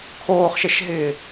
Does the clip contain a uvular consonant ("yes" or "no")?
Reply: yes